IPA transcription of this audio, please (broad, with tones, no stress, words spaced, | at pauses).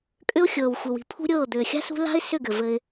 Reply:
kʼʏ˦ʊ̯ xʲɤː˨wxʷɘ˨wi̤˨ pʰṳ˦ɾʲɤː˦˨ d̪ʏː˨xʲa̤˦ sṳ˦ la̤˦ɪ̯sʏ˦˨ ɡɘ˨vɘ˧ɪ̯